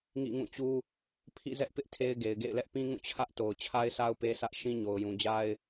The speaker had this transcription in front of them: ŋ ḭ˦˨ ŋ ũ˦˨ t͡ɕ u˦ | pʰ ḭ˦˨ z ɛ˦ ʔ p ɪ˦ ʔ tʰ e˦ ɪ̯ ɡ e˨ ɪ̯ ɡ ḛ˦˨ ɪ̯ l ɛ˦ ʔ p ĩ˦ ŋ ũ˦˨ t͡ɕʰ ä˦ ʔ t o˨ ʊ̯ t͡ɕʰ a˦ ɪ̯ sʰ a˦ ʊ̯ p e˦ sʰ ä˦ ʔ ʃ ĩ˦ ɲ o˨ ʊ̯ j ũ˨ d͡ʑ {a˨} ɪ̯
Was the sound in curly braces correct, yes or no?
no